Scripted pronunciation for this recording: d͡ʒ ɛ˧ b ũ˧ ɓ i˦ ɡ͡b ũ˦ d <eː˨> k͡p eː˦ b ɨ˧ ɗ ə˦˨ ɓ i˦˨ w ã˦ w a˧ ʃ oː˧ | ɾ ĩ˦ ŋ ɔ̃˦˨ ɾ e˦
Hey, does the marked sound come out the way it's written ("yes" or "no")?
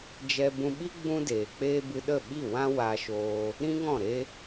yes